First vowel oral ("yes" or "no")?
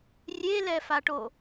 yes